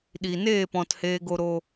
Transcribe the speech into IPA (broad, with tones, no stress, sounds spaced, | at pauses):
ɗ i˨ n eː˦˨ p ɔ̃˨ t h eː˧ ɡ o˧ ɾ o˧